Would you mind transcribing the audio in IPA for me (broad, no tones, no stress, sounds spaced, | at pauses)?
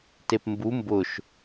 t e p m b u m b ʊ ʃ